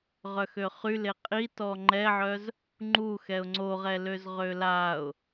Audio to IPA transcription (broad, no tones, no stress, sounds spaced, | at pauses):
ʁ œ x ø χ y l e qʼ i t ɔ ŋ͡ǃ ɛ ʕ œ z | ŋ͡ǃ u x ɛ ʊ̯ ŋ͡ǀ o ʁ ɛ l ø z ʁ ø l a ʊ̯